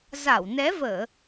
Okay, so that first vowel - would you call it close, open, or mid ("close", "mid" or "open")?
open